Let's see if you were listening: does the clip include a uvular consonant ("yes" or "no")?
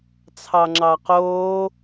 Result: yes